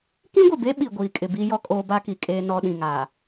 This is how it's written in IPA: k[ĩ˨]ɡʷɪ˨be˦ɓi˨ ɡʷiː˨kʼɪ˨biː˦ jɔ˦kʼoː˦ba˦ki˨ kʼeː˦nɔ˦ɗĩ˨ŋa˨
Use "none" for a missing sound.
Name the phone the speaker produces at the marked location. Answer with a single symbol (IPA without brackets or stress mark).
ĩ˦